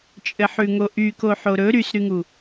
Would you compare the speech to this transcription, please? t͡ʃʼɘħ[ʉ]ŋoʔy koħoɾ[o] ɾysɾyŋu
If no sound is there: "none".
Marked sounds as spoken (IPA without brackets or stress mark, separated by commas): ʉ, ɵ